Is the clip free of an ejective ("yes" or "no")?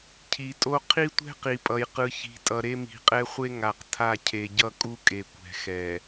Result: no